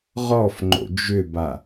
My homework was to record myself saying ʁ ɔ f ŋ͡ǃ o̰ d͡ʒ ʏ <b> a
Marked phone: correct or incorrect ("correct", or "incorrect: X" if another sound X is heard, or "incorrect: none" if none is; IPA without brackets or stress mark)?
correct